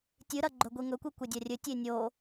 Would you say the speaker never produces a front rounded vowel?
yes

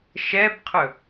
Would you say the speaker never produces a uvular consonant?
no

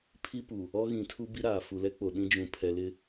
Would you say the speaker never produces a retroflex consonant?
yes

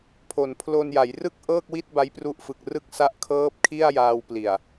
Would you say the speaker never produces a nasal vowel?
yes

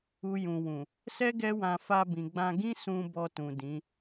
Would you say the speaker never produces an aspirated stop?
yes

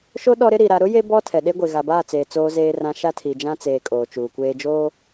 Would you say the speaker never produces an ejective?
no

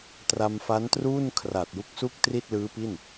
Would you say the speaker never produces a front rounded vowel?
yes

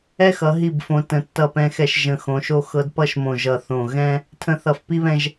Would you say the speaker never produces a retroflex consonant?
yes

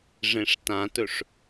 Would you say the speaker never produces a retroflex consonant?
no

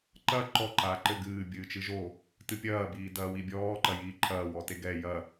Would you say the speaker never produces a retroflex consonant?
yes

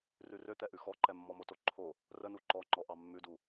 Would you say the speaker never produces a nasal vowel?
yes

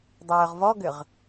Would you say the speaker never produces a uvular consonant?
no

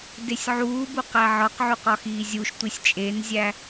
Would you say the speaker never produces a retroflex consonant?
yes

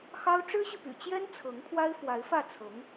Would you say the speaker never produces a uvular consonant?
yes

